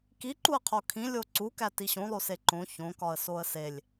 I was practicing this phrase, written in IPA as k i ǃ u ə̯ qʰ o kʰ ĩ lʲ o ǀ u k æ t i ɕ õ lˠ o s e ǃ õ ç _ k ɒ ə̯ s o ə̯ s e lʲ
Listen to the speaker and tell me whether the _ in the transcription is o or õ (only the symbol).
õ